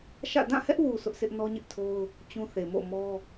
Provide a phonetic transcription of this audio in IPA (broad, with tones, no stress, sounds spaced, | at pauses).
ʃ ä̰˦˨ d ã˦˨ h ɛ˦ ʔ w u˨ sʰ ʊ˦ ʔ s ɪ˦ ʔ n ɔ˦ ɲ ɪ˦ ʔ tʰ o˦ ʊ̯ | t͡ɕ ũ˦ θ e˨ m o̰˦˨ m ɔ˦